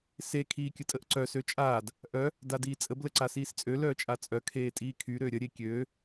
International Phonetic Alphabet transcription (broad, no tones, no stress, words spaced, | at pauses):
se kʰiːkʲətʼəʔǀœ søt͡ʃʼaːd | ʔœ | dadiːt͡sʼəb ləǀasiːst͡sʼø lœːt͡ʃʼat͡sʼœ kʰeːtʼiːkʰy ɾøɾʲə ɾʲekʲøː